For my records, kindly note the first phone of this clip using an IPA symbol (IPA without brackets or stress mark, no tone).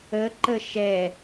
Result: ə